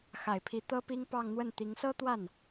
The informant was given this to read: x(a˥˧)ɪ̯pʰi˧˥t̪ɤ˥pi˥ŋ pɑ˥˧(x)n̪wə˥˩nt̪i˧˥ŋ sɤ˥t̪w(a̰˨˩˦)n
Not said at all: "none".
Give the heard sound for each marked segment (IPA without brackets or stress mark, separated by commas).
a˨˩, ŋ, a˥˩